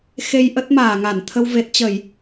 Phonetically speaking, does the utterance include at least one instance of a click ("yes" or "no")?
no